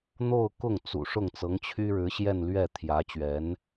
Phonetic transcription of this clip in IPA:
n̪o˥˧ʊ̯kʊ˥˩ŋt͡sṵ˨˩ ʂʊ˥˩ŋt͡sɤ˧˥ŋt͡ɕʰy˥ ɻɻ̩˧˥ɕjɛ˥˧nlɥɛ˥˩ t̪ʰjä˧˥t͡ɕɥɛ˧˥n

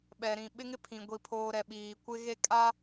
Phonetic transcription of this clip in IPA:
ɓɛ˨ɾĩ˨ ɓɪ˦ŋɪ˦pʰĩ˨ ɡʷi˨pʰoː˨ɾɛ˨ ɓiː˨kʷɪ˦ɣe˦ kʼa˦

